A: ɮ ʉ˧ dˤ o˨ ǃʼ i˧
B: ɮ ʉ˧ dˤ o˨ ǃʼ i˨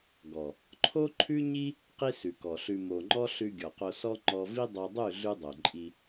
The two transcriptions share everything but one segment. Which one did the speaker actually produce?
A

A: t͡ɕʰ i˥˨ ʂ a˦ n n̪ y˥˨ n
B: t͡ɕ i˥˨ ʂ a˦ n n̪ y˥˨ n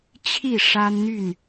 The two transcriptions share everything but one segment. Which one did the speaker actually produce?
A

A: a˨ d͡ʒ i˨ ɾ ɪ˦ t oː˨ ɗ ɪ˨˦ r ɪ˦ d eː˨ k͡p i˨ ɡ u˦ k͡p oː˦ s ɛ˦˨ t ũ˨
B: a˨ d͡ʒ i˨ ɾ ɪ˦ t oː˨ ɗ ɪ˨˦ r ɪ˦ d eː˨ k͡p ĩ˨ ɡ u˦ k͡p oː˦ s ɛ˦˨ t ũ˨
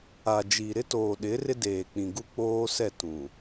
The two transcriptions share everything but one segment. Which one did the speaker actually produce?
B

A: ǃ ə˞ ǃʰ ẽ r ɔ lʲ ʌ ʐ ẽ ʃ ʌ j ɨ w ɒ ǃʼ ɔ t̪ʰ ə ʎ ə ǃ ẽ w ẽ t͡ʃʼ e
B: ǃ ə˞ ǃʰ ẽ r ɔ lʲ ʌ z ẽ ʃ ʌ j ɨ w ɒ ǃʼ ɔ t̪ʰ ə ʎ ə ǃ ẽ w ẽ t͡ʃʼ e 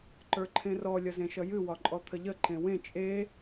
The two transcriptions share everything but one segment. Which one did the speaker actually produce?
B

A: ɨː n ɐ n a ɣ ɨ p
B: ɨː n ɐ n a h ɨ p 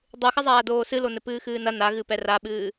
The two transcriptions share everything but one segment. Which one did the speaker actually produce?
A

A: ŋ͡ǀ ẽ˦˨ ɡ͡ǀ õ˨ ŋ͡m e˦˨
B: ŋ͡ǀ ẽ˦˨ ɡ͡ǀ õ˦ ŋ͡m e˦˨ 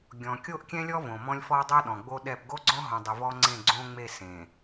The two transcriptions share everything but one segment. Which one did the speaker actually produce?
B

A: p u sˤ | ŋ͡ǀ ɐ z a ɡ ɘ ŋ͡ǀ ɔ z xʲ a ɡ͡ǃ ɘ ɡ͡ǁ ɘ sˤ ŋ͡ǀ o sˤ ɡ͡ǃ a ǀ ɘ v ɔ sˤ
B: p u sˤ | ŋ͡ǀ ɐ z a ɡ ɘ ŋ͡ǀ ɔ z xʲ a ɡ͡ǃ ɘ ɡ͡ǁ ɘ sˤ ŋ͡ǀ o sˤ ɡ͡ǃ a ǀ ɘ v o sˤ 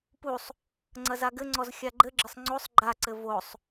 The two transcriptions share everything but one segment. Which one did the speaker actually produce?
B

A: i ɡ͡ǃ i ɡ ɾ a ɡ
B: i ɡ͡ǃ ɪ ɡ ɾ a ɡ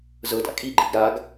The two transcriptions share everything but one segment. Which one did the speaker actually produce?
A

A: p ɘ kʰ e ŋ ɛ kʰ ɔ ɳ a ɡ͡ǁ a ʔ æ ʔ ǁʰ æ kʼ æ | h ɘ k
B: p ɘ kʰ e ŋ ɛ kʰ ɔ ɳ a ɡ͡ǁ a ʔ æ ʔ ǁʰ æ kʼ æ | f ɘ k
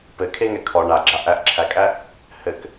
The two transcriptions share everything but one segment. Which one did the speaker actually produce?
A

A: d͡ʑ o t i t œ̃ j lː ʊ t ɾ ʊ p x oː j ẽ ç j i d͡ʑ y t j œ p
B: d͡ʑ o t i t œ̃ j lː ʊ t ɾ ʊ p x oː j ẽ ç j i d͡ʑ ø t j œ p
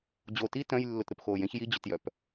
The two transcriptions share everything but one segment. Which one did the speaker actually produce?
B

